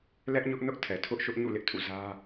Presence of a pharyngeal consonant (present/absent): absent